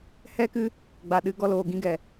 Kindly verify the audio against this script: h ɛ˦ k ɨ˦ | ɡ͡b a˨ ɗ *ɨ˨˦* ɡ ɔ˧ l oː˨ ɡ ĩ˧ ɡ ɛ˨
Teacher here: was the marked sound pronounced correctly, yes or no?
yes